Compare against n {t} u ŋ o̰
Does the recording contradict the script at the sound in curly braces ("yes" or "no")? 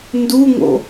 yes